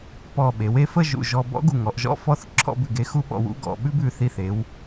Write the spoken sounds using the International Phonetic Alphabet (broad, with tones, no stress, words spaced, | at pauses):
pɔ˧˩ ɓe˩˧we˥ fə˥˧ʒṵ˧˩ʒɔ˧ bɔ̰˥ɡu˧˩ŋɔ˩˧ʔʒɔ̰˥˧ fɔ˥˧θǁʰɔ̰˥˧bʉ˧˩ɡe˧ xu˥ɓɔ̰˧wṵ˥˧ ɡɔ̰˧ ɓʉ˥bʉ˧˩θi˧˩θe˩˧w